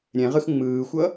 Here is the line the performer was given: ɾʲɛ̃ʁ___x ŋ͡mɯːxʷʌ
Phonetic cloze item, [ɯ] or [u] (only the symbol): ɯ